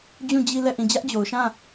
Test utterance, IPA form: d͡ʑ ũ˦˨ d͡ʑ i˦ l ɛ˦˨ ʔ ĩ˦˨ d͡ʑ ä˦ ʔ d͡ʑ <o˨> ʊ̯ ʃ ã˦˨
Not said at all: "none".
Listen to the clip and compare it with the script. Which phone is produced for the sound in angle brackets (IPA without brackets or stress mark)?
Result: o˨